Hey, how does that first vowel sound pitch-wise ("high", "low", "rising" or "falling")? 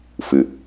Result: low